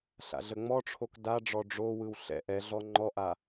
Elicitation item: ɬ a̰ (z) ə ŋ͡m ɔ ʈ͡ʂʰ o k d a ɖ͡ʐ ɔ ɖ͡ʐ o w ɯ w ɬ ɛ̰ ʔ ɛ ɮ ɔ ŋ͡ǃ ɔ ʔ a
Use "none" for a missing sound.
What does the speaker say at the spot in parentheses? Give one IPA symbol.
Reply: ɮ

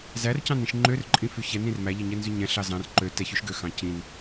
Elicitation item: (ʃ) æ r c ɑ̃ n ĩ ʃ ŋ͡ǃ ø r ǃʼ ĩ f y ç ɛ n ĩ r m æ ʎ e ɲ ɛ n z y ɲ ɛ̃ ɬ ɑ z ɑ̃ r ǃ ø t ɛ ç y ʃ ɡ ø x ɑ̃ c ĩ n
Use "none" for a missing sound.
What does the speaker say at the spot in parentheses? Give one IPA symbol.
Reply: z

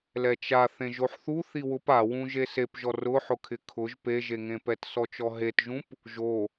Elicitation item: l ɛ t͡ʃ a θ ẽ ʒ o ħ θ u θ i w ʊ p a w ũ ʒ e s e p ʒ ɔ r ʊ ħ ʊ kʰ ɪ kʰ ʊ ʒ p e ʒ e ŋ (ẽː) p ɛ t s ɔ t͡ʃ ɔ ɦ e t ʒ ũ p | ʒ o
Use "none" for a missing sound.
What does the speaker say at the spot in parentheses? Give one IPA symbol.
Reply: ẽ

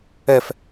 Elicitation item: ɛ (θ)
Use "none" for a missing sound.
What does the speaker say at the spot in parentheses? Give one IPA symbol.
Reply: f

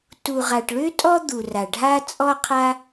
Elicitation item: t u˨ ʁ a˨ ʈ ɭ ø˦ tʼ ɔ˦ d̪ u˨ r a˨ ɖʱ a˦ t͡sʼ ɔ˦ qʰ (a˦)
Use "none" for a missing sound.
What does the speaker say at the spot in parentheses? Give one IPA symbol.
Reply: a˦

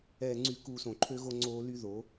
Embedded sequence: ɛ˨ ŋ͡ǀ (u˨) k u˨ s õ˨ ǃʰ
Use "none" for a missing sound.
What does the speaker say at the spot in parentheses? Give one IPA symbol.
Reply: y˨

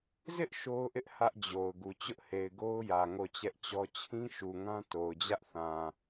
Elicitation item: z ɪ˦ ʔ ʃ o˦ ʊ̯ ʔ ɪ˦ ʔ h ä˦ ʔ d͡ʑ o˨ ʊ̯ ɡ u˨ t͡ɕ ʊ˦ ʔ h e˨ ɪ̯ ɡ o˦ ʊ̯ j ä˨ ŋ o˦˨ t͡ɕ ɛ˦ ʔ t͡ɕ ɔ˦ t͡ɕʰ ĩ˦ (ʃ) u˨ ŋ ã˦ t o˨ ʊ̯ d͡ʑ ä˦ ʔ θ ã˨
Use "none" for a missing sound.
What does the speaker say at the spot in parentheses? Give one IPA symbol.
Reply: ʃ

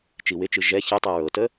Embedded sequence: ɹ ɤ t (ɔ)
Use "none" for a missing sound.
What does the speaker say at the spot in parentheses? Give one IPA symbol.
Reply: ə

